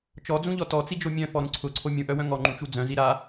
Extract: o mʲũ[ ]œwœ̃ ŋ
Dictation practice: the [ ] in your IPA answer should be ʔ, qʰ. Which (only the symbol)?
ʔ